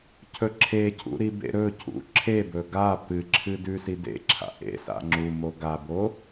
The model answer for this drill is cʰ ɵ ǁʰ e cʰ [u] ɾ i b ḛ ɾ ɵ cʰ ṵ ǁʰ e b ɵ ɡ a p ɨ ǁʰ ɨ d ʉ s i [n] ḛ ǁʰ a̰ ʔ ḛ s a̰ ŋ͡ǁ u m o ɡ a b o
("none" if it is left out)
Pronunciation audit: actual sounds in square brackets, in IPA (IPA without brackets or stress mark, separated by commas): ṵ, d